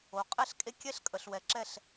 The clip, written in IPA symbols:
o˨ qʼɛ˦˨ɬkʼe˦kʲɛ˦ɬ kʼə˨ɬwɛ˨ǁɛ˦˨ɬ

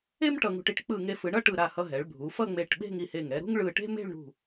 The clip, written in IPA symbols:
e˥m ʈʌ˧ŋṳ˧ʈi˥ʈ k͡pɯ˧˩ŋe˧fɯ˩˧ɳʌ˥˧ ʈɯ˧˩ɾa˧˩ hʌ˧ɦɛ˩˧ɭbʱu˩˧ fʌ˥˧ŋ͡me˧˩ʈɓe̤˥˧ŋ i˧˩he˧˩ŋɛ˧ ɾṳ˥ŋɭɯ˧˩ʈe̤˥ me̤˥˧ɭɳṳ˧˩

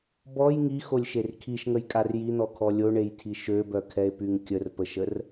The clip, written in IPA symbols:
bɔj ŋixolʲʃer kʰiʃŋəjkʼar jin̪ɔkʰɔ lʲoɳejtʰi ʃøbœkʰɛe̯pyŋ kʲərpəʃər

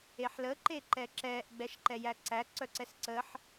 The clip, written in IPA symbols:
eħlə ǃeǃɛǁɛːʔ ɡ͡bɛʃǃɛjæǀæ ǀœǀɛsǀəħ

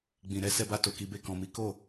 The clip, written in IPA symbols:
ɡ͡bĩ˨ɾɛ˧ sɛ˧ba˧ to˨ki˨be˧ kɔ̃˨mi˨˦ ko˦˨

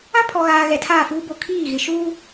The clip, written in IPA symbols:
ã˦pʰɔ˨ɣaː˨ ɣɛ˨tʰaː˦˨fuː˦ bo˨kʰiː˦˨ɣɪ˨ʃuː˦

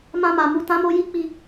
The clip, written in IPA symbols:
mã˧ma˨ mu˨tã˨˦mo˧ ji˦k͡pi˧

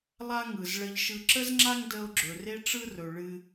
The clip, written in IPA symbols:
lˠa˥ŋɯ˩z ɭə˧ʎʃɯ˧ ǁə˥zŋ͡ǁa˥ŋ də˧o̯ɡ͡ǁɵ˩ re˥ʈ͡ʂɯ˥ rɵ˩ ɭɨ˧

